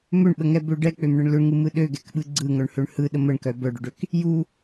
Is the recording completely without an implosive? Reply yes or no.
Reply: no